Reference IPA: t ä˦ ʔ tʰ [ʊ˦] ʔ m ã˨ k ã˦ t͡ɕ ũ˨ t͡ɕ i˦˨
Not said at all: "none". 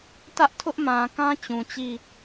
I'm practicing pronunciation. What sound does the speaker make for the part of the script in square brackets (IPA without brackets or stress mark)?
ʊ˦